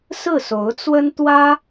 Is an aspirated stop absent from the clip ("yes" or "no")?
yes